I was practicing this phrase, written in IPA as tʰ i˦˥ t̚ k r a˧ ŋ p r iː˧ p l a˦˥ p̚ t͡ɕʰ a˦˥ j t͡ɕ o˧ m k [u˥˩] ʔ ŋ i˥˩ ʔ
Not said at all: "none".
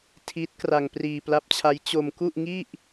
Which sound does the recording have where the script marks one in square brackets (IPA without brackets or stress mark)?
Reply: u˥˩